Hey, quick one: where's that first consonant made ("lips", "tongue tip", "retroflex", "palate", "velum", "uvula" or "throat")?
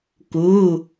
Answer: velum